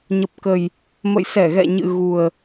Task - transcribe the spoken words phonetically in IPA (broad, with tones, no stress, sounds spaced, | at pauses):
ɲ ə˨˩ p̚ k ə˨˩ j | m ə̰˧˨ j s ɛ˧˩ ɣ ɛ̰˧˨ ɲ ɨ̰˧˨ ɣ u˨˩ ə̯